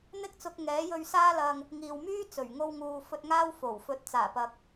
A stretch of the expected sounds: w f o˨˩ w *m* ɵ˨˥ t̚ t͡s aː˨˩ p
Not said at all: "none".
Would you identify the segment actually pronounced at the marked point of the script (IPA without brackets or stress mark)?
f